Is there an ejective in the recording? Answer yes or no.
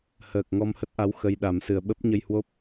no